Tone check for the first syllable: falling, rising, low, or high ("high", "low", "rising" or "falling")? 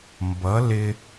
rising